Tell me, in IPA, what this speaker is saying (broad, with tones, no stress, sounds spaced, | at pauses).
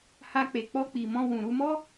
h a˧ k͡p e˨ k͡p ɔ˧ k͡p i˨ m ɔ̃˧ w ũ˨ ɾ u˧ m ɔ˦